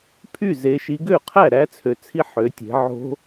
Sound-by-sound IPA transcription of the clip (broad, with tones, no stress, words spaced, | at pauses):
pʰy˥˩ ze˩˧ʃi˩˧ɡø˥˩qʰæ˥˩ ɾæ˦˥t͡sʰø˩˧t͡sʰi˦˥ ħø˩˧ tʲe̤˩˧ʕo̤˦˥